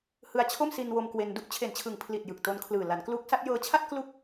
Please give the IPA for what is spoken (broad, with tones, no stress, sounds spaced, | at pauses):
h ɯ˧ a̯ t͡ɕʰ o˥˩ m s i˧ n w o˧ m k w e˧ n d u˥˩ ʔ t͡ɕʰ e˨˩ n t͡ɕʰ ɯ˨˩ ŋ pʰ l i˨˩ t̚ j ɯ˨˩ k̚ t o˧ n kʰ l ɯː˨˩ l a˩˦ n k l uː˦˥ k̚ s a˦˥ t̚ j ɤː˧ t͡ɕʰ a˥˩ t̚ k l u˥˩ k̚